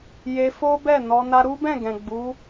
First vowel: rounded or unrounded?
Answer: unrounded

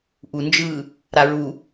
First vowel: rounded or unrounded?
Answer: rounded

